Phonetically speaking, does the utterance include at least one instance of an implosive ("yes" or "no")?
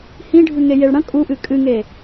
no